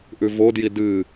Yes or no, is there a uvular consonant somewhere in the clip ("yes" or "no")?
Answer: no